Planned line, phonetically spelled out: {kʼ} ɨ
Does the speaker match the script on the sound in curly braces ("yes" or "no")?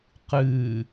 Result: no